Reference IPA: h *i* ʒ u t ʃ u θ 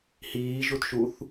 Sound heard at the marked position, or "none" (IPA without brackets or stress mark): iː